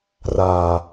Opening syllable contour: low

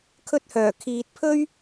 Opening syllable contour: high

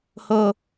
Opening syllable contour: high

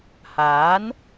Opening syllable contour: rising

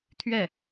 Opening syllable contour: falling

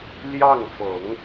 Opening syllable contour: falling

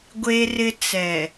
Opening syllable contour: high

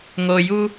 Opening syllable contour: low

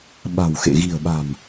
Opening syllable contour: low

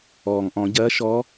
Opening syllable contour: low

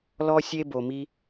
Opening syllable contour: high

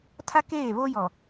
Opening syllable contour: high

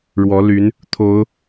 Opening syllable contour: rising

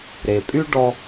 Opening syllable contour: low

